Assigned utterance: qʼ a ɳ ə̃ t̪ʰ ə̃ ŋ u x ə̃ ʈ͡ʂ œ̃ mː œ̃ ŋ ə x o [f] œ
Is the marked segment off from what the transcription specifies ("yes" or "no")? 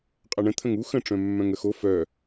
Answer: no